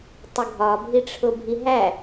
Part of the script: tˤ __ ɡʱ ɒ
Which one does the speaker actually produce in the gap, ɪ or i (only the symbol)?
ɪ